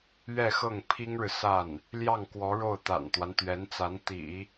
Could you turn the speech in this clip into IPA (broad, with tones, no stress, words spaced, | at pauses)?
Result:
ɥɛ˥˧xɤ˥˩ŋ pʰi˥ŋɻɻ̩˨ sa˥˩n | ljɑ˥˩ŋkwɔ˧˥ɻo˥˩ʊ̯ t̪a̰˨˩nt̪wa˦nt̪ɥɛ˧˥nt͡sa˧˥n t̪ḭ˨˩˦